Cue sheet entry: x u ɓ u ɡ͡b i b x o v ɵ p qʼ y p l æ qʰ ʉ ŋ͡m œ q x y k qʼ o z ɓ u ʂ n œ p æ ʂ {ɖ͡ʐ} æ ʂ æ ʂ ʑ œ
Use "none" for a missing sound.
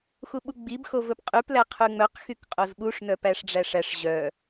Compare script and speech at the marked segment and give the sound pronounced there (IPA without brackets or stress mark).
ɖ͡ʐ